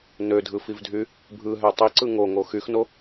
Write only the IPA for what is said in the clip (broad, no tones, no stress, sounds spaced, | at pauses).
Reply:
n ø dʱ ɯ f i v dʱ y | bʱ ɯ ɦ æ tˤ i ǀ ɯ ŋ o ŋ o x y x n o